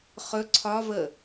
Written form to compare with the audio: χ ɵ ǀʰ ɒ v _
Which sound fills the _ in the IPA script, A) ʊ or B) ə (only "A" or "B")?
B